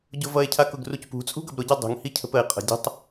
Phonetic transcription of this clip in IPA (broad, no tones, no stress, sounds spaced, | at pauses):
ɟ ʊ v ʌ e̯ cʰ a k ʊ ɡ r u c p ṳ t͡sʼ ṳ ɡ ʌ b ɾ ʊ ɟ a dˤ ṳ ŋ h i cʰ ə̤ p ə e̯ qʼ ə̤ dʲ ə̤ tˤ